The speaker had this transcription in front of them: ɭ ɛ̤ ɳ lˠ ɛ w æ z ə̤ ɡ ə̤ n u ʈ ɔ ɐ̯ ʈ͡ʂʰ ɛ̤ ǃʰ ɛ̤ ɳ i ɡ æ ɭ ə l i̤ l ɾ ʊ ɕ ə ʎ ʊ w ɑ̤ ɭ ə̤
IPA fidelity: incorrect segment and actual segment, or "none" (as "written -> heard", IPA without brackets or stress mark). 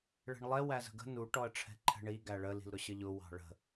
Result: none